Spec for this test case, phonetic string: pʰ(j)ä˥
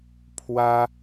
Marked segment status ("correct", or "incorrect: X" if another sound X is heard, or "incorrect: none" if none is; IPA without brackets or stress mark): incorrect: w